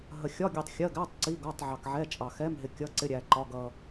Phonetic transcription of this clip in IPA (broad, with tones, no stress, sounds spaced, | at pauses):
ɦ ə˧ xʲ ɒ˧˥˧ ɡʲ u˧ tˤ xʲ ɜ˧˥˧ ɡ æ˧˥˧ tˤ ǀ i˧˥˧ ɡ ɒ˧˥˧ tˤ ʕ ɑ˧ k ʕ ɛ˧˥˧ t͡ʃʼ ɑ˧ x ɛ˧˥˧ m ɦ ɪ˧ kʲ ʌ˧˥˧ ǀ ɪ˧˥˧ ɾʲ æ˧ ǃ ɒ˧˥˧ ɡ ʌ˧